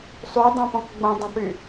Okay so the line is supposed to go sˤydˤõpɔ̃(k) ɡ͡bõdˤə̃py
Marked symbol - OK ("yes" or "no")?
yes